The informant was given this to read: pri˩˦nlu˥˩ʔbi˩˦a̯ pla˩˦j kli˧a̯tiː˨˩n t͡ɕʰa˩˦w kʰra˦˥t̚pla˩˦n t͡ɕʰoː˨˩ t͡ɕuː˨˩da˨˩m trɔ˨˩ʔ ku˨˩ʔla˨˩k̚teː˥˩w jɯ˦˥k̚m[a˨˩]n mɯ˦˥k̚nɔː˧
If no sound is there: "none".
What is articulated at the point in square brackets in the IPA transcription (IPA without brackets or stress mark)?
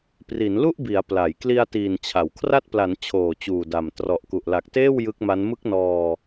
a˦˥